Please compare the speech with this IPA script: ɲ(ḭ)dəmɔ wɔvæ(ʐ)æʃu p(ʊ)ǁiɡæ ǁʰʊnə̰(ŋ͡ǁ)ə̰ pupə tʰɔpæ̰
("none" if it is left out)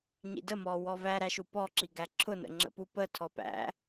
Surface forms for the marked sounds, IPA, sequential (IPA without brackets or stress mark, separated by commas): ḭ, ɾ, ɔ, ŋ͡ǁ